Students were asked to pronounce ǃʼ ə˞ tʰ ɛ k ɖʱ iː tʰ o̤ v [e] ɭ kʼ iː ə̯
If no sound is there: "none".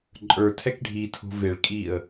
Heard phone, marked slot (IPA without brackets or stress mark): e